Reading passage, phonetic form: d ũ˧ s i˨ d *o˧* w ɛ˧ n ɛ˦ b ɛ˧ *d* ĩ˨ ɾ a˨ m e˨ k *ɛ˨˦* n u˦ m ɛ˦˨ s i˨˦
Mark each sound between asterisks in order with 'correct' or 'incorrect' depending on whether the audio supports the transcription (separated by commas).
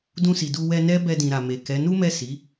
incorrect, correct, correct